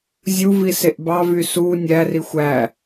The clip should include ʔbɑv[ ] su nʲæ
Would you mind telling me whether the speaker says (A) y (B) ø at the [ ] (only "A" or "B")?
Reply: A